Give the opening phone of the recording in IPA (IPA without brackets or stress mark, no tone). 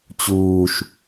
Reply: t͡ɕ